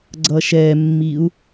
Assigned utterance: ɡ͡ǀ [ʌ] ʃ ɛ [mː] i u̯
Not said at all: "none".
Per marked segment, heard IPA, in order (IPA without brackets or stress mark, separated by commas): ʌ, mː